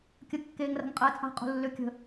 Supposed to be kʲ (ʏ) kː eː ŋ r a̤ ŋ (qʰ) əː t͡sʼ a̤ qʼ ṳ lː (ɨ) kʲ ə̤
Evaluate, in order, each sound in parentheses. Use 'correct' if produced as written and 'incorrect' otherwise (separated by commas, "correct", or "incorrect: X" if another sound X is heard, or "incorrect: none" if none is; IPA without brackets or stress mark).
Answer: incorrect: ə, incorrect: qʼ, incorrect: ʏ